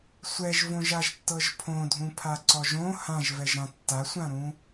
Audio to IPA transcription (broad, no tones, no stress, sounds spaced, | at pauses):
sʷ ɛ ʒ v õ ʒ a ʒ tː ɤ ʒ pʰ õ dʱ ũ pʰ a ǀ ɔ ʒ õ h ã ʒ v ɛ ʒ ɾ ã tː a sʷ ã ɾ ũ